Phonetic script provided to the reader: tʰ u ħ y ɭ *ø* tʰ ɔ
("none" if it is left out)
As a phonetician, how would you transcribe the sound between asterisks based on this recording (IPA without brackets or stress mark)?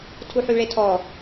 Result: e